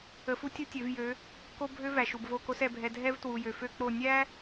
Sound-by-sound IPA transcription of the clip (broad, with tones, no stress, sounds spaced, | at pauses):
ə˧ f u˦ tʲ u˦ tʲ ø˨˦ v j ø˨˦ | k o˦ bʱ ø˦ v æ˨ ʃ u˨ b v o˦˨ k o˧ s ɛ˨ bʱ ɛ˨ dʱ ɛ˦ v t w u˨ j ø˨ f ø˦ k͡p o˦˨ nʲ æ˦